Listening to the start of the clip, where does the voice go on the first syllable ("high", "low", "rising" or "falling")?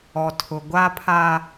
low